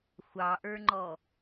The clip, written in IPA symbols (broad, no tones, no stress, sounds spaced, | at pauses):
xʷ ɑ ʔ ə˞ ŋ͡ǃ ɔ